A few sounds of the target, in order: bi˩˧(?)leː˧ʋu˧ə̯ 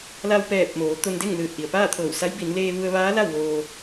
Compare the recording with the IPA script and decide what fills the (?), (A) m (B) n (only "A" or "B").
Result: B